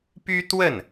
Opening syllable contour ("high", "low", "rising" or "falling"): high